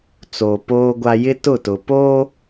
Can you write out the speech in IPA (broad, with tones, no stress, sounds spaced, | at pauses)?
t͡s oː˨ p oː˦ ɡʷ a˦ j ɪ˦ t ʊ˦˨ t ʊ˨ p oː˦